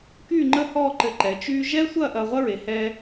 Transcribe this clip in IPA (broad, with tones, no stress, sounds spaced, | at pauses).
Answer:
k yː˥˧ ŋ͡ǃ ə˥˧ h ɔː˥˧ ǃ ɘ˧˩ ǃ ɛ˩˧ t͡ʃ yː˥ ʒ ɛː˥ sʷ ɐː˥˧ ʔ ɐː˧ ʁʷ ɐ˥ ɹ e˩˧ h ɛː˧